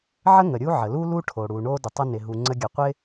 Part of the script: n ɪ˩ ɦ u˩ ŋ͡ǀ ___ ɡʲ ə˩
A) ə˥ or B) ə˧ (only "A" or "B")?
B